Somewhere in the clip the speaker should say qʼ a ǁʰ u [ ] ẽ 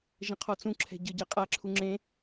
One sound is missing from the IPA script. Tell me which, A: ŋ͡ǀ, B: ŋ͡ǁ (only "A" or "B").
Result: B